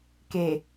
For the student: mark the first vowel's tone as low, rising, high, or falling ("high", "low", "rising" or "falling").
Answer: low